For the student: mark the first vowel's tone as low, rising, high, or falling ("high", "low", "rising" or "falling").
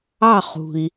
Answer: falling